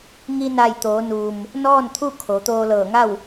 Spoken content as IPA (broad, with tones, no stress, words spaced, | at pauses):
ŋi˧na˧˩j t̪oː˩˧nuː˩m | nɔː˥˨nt̪ʰu˥˨ kʰo˩˧t̪oː˧ lɤː˧˩ŋa˥˨w